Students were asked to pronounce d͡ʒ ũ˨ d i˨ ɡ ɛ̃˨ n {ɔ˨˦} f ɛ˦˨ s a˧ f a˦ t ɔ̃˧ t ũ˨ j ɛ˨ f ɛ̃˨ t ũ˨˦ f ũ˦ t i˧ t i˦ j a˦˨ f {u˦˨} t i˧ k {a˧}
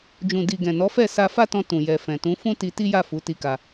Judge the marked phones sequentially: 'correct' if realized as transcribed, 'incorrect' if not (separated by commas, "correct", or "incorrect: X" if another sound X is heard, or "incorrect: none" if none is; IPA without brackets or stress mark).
correct, incorrect: u˨˦, correct